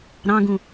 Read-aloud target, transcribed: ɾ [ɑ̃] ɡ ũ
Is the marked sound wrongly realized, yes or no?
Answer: no